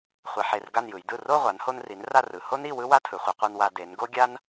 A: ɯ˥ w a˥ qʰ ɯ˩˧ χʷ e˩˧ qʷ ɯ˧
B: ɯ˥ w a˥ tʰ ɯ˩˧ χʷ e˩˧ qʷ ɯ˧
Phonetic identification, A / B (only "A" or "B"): B